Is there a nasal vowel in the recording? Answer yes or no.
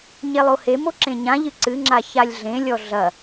yes